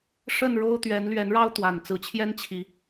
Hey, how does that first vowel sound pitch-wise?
falling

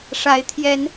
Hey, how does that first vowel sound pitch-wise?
rising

